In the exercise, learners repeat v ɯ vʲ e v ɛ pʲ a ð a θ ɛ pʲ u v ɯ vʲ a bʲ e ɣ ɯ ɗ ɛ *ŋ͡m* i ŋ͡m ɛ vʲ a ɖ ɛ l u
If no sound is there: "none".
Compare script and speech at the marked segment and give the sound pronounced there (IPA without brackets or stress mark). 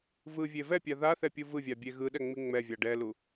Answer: ŋ͡m